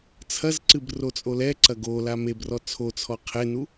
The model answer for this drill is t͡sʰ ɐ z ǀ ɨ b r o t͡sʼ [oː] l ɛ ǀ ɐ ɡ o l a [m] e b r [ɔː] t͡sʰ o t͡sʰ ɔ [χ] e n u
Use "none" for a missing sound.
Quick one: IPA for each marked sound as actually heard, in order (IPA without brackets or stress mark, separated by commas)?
o, m, ɔ, qʰ